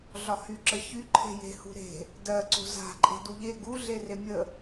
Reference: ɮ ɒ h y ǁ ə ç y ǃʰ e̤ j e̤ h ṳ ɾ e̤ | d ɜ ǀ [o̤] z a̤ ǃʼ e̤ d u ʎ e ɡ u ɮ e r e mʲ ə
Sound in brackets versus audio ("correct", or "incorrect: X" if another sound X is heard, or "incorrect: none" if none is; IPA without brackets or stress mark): correct